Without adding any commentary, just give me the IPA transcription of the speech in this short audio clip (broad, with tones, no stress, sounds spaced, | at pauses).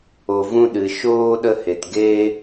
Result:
o˨ v ũ˧ ɗ ɨ˨ ʃ oː˧ ɗ ə˧ h e˨ t ɡ eː˧